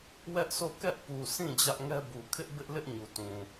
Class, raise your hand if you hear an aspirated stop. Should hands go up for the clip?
yes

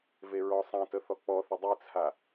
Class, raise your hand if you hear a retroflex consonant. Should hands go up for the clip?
no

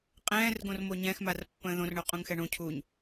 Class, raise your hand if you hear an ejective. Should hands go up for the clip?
yes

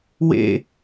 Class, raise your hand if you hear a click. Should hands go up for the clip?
no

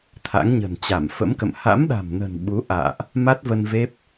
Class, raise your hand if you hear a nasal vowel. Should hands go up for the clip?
no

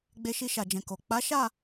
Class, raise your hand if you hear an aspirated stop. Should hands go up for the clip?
no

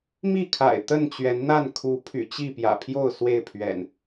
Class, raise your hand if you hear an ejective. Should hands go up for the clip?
no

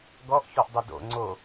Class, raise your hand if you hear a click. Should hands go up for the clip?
yes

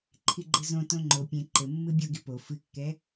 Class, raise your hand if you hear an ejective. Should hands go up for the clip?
no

